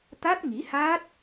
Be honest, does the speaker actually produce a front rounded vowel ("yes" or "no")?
no